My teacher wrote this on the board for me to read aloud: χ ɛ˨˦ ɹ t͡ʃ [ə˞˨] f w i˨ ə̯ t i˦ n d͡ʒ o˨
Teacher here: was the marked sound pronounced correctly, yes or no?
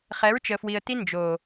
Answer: no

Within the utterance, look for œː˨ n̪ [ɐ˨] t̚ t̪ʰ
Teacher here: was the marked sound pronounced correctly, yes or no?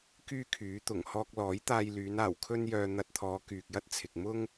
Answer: no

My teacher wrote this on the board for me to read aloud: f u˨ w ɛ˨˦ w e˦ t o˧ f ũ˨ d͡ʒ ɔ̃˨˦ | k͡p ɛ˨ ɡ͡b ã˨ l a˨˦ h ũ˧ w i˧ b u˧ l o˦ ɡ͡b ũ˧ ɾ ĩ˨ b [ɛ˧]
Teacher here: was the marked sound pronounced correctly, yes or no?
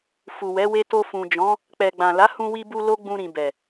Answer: no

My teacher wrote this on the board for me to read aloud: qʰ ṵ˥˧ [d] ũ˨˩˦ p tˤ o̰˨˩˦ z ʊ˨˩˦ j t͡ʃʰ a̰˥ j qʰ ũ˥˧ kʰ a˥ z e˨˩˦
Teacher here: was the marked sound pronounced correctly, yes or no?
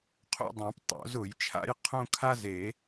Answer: no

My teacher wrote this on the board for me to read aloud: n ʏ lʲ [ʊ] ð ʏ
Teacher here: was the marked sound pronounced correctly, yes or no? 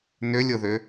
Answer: yes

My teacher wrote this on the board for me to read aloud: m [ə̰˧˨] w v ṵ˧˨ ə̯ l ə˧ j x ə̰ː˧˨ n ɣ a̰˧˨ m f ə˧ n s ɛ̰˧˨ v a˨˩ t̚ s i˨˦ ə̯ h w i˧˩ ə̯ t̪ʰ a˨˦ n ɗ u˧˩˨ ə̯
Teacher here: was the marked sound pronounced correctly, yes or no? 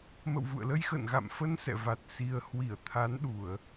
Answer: yes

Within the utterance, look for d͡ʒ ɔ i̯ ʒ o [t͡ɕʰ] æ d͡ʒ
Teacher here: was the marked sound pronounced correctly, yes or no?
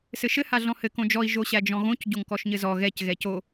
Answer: no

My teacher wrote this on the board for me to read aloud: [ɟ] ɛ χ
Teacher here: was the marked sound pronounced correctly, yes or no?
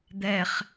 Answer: no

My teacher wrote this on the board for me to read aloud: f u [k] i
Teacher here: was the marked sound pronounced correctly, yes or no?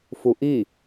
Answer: no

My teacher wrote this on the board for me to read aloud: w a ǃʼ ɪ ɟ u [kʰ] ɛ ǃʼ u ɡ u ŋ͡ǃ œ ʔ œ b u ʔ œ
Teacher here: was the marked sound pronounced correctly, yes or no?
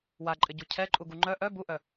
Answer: no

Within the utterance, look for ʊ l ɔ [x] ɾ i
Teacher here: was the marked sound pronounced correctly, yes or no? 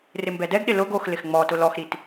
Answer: yes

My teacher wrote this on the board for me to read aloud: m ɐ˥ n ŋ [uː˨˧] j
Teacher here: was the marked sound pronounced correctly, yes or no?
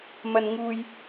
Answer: no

